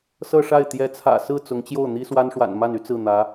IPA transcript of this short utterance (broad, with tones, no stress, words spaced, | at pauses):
sɤ˥˧ʂa˥˩ɪ̯ t̪jɛ˧˥t͡sʰä̰˨˩ sɹ̩˥˩ t͡sʊ˧˥ŋt͡ɕjo˥˩ʊ̯ n̪i˥swa˥n ʂwa̰˨˩nma˥˩ny˥ t͡sɹ̩˥˩n̪ä˧˥